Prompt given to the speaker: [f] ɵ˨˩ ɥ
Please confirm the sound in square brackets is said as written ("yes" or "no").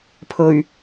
no